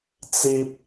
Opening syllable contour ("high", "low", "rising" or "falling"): high